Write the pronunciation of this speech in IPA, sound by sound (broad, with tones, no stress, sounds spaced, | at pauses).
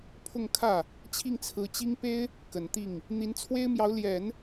pʰ ʊ˥˧ ŋ kʰ ä˥˩ | t͡ɕʰ i˥˩ ŋ t͡sʰ ɹ̩˧˥ t͡ɕ i˥ ŋ p e˥ ɪ̯ | k ə˨˩ n t̪ i˥˩ ŋ | n̪ i˧˥ n t͡sʰ w e˥ ɪ̯ m j ɑ˧˥ ʊ̯ l j ɛ˨˩˦ n